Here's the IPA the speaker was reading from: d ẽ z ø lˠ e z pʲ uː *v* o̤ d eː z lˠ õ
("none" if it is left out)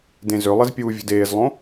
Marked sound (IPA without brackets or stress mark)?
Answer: vʲ